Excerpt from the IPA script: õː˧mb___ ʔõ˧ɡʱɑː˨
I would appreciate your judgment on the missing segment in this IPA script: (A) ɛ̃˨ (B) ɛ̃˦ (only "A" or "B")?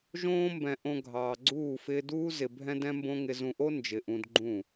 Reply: A